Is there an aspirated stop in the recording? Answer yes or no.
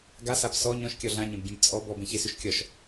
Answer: no